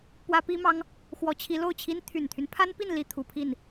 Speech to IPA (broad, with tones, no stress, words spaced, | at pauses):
pwä˥pi˥mɑ˥ŋ | xwɔ˧˥t͡ɕʰi˧˥lo˥˩ʊ̯t͡ɕʰi˥n t̪ʰy˨˩nt̪ʰy˦npʰa˥npi˥˧n li˥˩t̪ʰu˨˩pʰi˥˩n